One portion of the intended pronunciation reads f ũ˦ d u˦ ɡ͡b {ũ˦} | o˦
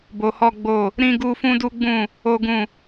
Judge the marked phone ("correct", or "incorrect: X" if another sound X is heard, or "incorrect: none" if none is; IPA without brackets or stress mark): incorrect: ũ˦˨